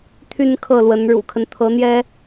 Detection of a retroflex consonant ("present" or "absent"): present